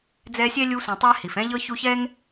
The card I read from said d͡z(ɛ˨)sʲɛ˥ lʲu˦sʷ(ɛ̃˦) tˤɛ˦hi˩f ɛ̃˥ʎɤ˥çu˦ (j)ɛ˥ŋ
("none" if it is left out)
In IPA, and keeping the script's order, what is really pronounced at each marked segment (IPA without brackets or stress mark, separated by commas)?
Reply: ɛ˦, ɛ̃˨, ç